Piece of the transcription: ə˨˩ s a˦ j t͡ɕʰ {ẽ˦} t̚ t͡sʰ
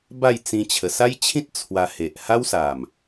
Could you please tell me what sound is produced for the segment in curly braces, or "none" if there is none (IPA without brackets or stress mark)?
ĩ˦